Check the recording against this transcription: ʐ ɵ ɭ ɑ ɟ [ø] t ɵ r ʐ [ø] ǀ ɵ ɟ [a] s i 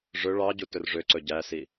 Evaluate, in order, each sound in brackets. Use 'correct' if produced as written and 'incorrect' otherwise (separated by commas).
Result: incorrect, correct, incorrect